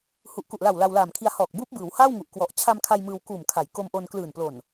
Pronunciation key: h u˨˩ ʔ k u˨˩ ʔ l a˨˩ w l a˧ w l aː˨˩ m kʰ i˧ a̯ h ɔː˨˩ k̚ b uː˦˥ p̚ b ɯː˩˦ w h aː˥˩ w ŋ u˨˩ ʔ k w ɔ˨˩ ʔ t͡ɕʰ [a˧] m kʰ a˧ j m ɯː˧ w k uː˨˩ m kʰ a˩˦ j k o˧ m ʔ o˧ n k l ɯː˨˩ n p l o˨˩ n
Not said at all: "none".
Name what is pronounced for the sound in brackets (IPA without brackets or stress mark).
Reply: a˧